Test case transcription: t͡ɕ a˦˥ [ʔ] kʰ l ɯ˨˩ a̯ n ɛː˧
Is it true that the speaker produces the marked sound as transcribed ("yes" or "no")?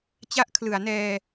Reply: yes